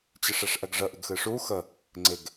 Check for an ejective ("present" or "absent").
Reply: absent